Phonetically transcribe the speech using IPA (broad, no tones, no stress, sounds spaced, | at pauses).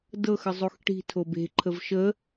d ɤ x ə zˤ o x ʈ i̤ tʰ o b e̤ ǃʰ ə v ʃ ə